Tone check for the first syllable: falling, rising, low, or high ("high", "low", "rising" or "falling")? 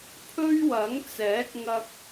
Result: high